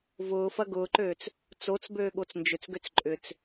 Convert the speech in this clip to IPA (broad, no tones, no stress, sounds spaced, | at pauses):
v ʊː f ɐ ɡ ʊː ǃ øː t͡s | t͡s o t͡s b øː ɠ o t͡s n d͡ʒ ʏ t͡s ɡ ø t͡s ǃʼ ʏ t͡s